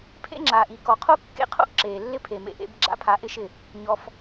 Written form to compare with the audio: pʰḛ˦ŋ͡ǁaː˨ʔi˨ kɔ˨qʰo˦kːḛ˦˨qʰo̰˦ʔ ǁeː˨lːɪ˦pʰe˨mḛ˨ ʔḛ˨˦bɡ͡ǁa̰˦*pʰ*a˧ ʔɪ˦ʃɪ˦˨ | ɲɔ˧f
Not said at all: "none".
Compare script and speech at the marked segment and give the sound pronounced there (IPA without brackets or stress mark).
pʰ